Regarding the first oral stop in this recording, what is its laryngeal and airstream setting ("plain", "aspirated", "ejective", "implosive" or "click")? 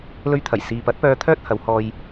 aspirated